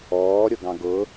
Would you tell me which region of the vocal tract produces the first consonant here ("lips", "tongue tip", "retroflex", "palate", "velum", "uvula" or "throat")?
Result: tongue tip